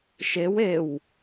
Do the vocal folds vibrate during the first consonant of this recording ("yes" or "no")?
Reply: no